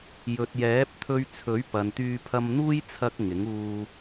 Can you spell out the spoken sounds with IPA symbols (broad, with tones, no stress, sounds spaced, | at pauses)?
j ɵ˨ t̚ j ɛː˨˥ p̚ t̪ʰ ɵ˧ ɥ t͡sʰ ɵ˨˥ ɥ p ɐ˨ n t̪ yː˧ pʰ ɐ˧ m n̪ uː˥ j t͡sʰ ɐ˧ k̚ ŋ ɪ˨˥ ŋ uː˧